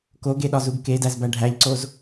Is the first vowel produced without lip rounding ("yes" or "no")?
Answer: no